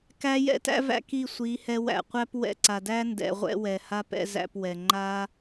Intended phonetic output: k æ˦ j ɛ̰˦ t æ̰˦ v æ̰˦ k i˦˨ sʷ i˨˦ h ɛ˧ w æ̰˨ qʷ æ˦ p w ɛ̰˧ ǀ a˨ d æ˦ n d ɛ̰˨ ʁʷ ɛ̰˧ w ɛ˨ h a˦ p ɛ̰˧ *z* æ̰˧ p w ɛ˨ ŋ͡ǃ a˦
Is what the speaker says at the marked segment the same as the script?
yes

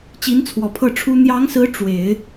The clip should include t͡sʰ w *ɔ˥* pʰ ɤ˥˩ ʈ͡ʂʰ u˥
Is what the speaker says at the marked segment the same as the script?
no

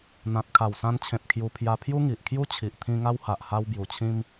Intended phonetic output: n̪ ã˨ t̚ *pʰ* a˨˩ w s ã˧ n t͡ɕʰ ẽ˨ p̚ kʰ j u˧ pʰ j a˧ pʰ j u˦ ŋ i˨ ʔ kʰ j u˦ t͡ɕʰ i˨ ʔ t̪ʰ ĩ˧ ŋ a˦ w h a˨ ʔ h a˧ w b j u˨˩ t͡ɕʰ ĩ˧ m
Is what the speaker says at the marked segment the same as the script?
no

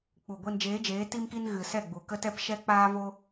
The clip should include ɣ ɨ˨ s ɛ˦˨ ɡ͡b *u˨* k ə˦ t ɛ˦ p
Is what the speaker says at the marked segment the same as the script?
yes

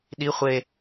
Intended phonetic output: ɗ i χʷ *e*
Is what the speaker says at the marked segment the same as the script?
yes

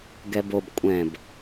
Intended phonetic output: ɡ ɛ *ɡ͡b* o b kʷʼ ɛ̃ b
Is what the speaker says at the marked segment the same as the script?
no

